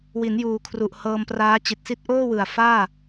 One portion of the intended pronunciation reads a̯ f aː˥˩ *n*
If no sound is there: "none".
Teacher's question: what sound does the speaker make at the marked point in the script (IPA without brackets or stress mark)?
none